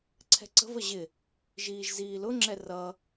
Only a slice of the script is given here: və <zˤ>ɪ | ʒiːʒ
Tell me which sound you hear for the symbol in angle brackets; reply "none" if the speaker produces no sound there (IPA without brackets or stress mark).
ʑ